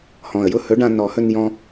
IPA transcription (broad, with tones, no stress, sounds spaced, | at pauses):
h ɔ̃˨˩ ə̯ j ʊ˥˨ h ɵ˨˥ ɖ ã˧ n ɔ˨˩˦ h ɵ˧ n j ɔ̃˧